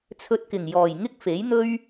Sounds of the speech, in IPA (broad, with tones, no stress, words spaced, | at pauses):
t͡sʰɵ˧t̚kɪ˨˩ŋjɔː˨˩jŋɪ˥k̚ fe˨˥jn̪ɵ˥ɥ